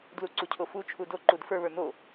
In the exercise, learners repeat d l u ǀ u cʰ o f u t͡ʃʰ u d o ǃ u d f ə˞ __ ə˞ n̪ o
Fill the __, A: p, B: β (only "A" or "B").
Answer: B